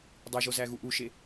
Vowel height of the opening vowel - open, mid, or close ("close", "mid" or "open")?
close